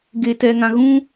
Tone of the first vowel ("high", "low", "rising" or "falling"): low